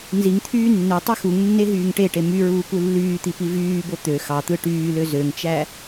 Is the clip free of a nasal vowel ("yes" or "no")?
yes